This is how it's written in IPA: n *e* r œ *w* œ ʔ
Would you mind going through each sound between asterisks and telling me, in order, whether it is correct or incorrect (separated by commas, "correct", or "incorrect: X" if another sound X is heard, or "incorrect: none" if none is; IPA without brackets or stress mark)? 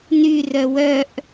incorrect: y, correct